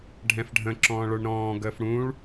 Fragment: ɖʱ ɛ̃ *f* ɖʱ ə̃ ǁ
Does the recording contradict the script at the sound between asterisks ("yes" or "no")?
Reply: no